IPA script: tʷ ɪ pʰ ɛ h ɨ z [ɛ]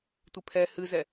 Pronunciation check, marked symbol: correct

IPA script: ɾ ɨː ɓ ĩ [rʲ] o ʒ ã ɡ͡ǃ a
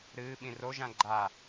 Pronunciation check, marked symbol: incorrect: r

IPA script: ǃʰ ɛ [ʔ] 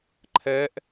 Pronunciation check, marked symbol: correct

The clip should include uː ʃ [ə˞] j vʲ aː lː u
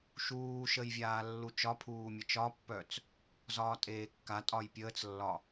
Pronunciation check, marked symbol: incorrect: ə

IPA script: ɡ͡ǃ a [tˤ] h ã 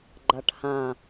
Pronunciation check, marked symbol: incorrect: ʈ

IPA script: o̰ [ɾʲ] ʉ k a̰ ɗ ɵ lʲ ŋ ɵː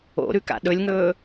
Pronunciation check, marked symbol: incorrect: ɾ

